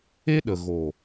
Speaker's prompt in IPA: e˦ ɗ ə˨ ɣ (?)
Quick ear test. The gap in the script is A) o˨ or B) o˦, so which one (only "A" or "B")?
A